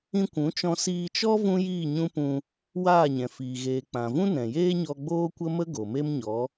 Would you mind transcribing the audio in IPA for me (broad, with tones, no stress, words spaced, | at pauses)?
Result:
ĩ˧kʷũ˨˦t͡ʃɔ̃˧ siː˧t͡ʃɔ˦ vũ˦jiː˦˨ɲũ˦ pũ˧ | waː˦˨ɲɛ̃˨fiː˨ ɣeː˨ k͡pã˨vũ˦ nɛ̃˨jeː˦ɲɔ˧ ɡ͡boː˦kʷə˦mə˦ ɡo˨me˦m ɲɔ˨˦